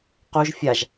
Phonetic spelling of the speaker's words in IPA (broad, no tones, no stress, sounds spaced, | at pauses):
q u ʒ fʲ a ʒ